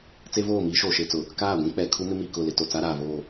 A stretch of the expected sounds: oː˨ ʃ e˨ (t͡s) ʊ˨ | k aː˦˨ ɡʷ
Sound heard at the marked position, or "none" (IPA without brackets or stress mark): t͡s